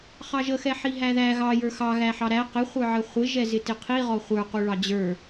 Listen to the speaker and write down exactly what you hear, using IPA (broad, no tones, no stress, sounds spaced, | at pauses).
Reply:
χ ɑ ʒ ə x ɛ ħ i ɦ æ ð æ ɣ ɑ j ə˞ x ɑ ɣ æ ħ ɑ ɾ æ q ɪ χʷ ə˞ ʕ ə χʷ ɪ ʒ ɛ z ɪ t ɪ qʰ i ʁ ɔ χʷ ə˞ q u ɭ ɑ d͡ʑ ə˞